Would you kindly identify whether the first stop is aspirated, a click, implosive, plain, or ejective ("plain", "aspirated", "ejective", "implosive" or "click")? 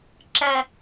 click